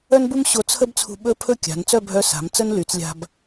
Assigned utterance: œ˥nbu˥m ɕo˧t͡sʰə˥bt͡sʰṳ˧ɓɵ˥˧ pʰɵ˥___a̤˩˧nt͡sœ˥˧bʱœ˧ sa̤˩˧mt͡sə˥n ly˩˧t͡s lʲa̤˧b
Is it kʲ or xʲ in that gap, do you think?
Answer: kʲ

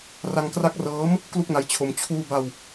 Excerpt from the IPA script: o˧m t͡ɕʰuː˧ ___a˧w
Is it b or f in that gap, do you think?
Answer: b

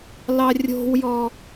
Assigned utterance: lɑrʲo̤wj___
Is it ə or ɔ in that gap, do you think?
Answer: ɔ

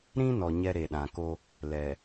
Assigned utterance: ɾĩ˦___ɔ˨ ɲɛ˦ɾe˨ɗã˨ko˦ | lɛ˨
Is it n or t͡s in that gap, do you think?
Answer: n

